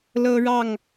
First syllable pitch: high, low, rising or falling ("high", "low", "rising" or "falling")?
high